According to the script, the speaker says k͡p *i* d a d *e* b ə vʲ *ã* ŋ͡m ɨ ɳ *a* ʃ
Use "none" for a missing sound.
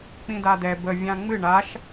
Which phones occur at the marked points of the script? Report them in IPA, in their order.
ĩ, ɛ, ã, a

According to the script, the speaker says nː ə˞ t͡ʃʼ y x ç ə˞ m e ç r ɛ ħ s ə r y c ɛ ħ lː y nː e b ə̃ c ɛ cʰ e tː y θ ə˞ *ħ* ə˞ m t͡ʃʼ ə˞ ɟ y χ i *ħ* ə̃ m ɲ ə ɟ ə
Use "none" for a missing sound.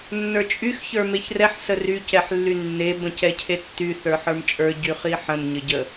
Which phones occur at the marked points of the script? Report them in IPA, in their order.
ħ, ħ

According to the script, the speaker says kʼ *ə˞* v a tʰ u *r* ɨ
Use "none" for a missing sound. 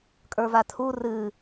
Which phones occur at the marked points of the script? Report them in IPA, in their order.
ə˞, r

